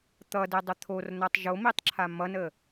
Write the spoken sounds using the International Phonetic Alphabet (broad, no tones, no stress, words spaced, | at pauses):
t̪ʌdedˤə t̪ʰornʌtˤ ʒomitˤǁʰa mʌnə